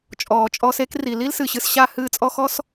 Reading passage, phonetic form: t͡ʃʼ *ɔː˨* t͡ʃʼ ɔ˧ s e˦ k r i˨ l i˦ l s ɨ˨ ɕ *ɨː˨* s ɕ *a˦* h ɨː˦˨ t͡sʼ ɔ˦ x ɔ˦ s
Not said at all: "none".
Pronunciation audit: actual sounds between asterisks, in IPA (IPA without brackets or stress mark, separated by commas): ɔː˨, ɨ˨, a˦˨